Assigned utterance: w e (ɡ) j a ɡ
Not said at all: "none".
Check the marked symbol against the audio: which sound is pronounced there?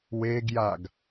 ɡ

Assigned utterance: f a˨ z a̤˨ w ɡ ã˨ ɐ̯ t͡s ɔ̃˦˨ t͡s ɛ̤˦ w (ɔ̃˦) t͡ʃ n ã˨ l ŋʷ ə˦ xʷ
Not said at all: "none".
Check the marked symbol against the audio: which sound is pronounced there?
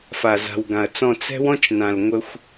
ɔ̃˦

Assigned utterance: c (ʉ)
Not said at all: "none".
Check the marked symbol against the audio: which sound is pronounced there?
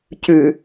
ʉ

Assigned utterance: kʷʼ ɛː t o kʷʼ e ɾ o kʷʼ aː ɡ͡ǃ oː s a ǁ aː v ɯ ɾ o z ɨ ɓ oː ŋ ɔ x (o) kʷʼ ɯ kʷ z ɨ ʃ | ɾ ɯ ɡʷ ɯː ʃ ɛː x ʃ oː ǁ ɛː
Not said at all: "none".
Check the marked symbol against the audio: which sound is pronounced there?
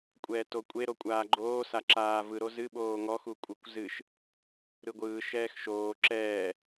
u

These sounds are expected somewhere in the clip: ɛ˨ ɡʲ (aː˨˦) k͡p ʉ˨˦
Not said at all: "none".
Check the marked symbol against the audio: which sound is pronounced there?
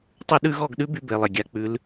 a˨˦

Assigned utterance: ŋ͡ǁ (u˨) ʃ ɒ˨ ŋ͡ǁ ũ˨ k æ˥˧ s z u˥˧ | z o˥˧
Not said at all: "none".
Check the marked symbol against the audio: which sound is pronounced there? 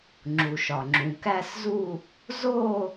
u˨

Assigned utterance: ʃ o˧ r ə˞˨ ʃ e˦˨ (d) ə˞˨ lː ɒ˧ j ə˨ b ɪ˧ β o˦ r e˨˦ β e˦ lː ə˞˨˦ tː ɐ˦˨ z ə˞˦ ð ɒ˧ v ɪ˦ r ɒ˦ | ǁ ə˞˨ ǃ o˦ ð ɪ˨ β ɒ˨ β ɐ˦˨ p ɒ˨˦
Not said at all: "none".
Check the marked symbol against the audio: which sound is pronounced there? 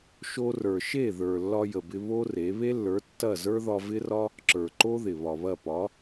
ð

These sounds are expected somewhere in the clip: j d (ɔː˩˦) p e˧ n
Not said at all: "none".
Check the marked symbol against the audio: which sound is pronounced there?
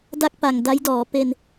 ɔː˩˦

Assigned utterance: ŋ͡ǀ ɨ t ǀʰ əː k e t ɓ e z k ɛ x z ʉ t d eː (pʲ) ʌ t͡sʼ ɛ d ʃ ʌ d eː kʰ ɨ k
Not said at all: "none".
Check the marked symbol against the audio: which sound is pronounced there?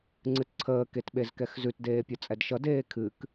pʲ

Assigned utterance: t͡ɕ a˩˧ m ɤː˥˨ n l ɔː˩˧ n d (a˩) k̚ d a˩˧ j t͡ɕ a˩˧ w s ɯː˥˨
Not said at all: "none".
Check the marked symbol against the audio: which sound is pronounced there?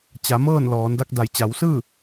a˧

